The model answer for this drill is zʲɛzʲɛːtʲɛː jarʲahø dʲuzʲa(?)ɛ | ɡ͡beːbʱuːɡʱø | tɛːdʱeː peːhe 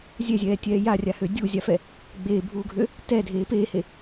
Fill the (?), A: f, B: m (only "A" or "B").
A